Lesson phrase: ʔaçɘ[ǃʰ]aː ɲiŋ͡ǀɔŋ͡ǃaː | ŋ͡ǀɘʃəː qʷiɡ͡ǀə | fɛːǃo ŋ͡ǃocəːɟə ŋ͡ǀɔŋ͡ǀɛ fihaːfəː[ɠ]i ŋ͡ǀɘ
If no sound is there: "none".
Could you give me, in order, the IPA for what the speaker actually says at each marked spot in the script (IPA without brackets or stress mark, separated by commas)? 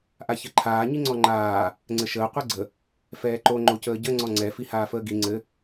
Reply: ǃʰ, ɡ